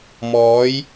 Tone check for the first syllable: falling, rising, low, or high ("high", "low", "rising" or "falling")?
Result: rising